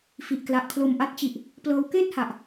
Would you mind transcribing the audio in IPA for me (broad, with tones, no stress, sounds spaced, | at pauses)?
f i˨˩ ʔ k l a˨˩ ʔ kʰ l o˨˩ m ʔ a˦˥ t̚ t͡ɕ i˨˩ ʔ | p l ɤː˧ w k eː˥˩ t̚ h a˨˩ ʔ